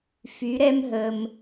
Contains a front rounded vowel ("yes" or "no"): yes